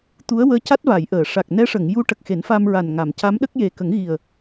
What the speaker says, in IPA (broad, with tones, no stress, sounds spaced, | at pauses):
t̪ u˧˥ ə̯ w əː˧˥ c a˦˥ t̚ v a˨˩˨ j ʔ əː˨˩˨ ʂ a˨˩ k̚ n ɛ˧˥ ʂ ə˨˩˨ ŋ j u˧˥ ʈ ə˨˩ k̚ x e˨˩˦ n f a˧ m ɹ a˨˩ n ŋ a˨˩˨ m c a˧˥ m ɗ ə˦˥ k̚ j e˨˩ k ə˨˩˦ ŋ ɣ i˨˩ ə̯